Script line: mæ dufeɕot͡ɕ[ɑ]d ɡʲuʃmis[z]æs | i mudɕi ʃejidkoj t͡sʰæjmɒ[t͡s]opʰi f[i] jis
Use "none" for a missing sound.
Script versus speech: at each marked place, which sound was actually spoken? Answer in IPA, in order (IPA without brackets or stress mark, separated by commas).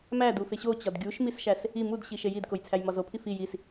ɒ, ʃ, z, i